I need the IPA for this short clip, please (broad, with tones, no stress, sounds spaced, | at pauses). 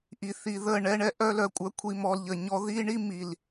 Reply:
ʔ i˨ θ i˨ ð ə˦˨ ɳ ɛ˧ ɳ ɛ˦ ʔ œ˦ l œ˧ kʷʼ œ˧ kʷʰ i˧ m ɔ˧ l ʎ ə˨ ɲ ɔ˦ ð i˦ ɳ i˦ m i˨ l